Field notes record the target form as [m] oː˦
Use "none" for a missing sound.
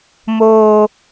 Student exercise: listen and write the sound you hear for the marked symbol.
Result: m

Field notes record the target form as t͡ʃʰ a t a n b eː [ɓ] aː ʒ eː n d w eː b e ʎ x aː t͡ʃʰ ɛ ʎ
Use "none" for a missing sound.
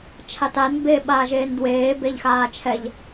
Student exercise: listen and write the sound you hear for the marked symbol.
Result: ɓ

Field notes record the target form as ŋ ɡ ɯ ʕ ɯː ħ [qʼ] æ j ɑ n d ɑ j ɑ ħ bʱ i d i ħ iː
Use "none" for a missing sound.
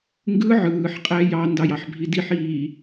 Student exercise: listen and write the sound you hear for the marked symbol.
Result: qʼ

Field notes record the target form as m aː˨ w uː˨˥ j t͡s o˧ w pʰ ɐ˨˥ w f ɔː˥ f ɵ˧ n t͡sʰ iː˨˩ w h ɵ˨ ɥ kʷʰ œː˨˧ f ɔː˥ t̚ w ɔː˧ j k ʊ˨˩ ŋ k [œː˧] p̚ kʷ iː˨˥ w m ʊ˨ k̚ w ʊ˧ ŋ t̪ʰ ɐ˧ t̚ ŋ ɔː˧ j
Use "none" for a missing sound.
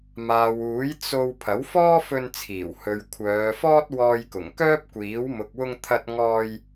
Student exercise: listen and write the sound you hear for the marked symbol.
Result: œː˥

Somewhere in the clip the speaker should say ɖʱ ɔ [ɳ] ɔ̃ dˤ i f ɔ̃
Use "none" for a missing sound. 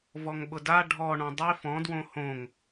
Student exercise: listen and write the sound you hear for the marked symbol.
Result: ɳ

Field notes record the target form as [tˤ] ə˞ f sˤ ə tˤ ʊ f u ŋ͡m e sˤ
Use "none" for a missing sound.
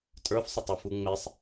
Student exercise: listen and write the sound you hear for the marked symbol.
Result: tʼ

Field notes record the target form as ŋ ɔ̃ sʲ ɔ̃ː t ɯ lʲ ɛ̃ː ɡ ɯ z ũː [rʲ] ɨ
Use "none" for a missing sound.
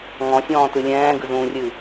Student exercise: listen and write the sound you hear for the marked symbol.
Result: rʲ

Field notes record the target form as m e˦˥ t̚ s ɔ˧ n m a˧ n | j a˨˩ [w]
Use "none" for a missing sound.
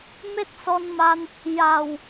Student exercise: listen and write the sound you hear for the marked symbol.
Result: w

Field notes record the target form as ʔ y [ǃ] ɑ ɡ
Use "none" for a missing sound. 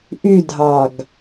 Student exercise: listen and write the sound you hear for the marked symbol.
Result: dʱ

